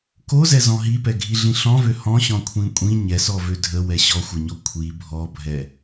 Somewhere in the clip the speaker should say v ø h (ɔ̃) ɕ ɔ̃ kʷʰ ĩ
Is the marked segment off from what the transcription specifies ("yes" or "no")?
no